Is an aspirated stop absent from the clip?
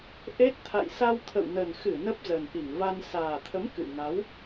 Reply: no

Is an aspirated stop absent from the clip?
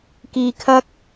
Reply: no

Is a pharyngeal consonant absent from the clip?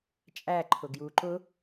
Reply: yes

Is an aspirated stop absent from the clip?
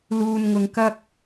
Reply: yes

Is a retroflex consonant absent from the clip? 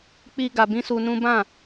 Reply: yes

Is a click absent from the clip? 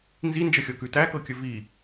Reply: yes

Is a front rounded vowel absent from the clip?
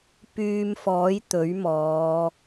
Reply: no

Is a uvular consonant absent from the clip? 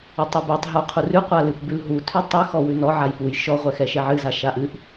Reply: no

